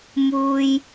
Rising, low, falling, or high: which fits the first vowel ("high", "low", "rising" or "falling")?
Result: high